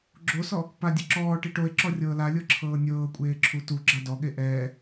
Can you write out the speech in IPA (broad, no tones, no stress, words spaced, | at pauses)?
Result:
ɡ͡ǁosɔ | padʲɯ ǁɔː ʈiʈoe̯ǁɔ rʲɤːlalʲɤ ǁʰɤːnʲɤːkʷʼeː ǁʰutuɡ͡ǁa dɔɠe ʔɛː